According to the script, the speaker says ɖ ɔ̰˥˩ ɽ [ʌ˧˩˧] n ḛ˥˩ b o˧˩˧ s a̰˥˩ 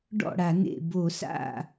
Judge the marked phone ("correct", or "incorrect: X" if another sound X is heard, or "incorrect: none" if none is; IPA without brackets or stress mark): incorrect: a˧˩˧